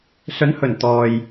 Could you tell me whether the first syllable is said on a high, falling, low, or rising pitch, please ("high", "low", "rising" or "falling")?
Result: rising